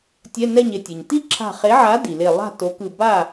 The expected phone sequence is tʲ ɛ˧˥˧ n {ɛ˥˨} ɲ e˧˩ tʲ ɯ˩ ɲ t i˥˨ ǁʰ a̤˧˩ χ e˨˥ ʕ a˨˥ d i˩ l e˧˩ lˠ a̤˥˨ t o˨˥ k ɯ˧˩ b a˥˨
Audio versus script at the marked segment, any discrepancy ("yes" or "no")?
no